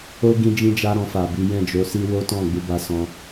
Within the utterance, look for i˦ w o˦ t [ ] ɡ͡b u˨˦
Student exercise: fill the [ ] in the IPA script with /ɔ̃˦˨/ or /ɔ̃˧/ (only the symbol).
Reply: ɔ̃˦˨